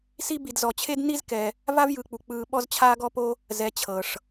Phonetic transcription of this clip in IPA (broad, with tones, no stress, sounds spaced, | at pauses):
s i˦ b i˨ d z ɔ˨ t͡ɕʰ e˥ d n i˥ z k ɛ˨ | v a˥ v j ɯ˨ k͡p u˨ k͡p ɯː˦ ɓ ɔ˥ z t͡ɕʰ aː˥ ɡ ɔ˥ p o˥ | z ɛ˨ t͡ɕʰ ɤ˩ ʂ